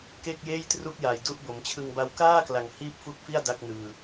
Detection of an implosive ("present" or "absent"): absent